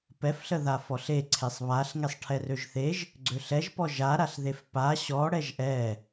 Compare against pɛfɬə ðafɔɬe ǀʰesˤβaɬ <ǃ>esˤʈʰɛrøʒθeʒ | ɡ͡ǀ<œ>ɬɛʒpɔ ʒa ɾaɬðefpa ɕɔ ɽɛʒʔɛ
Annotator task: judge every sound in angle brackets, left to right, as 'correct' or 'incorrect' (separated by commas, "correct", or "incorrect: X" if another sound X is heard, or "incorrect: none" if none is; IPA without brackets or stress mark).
incorrect: ŋ, incorrect: ø